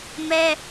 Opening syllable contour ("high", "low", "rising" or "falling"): high